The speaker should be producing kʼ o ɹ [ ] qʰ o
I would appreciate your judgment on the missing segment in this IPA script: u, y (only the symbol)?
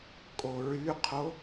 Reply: y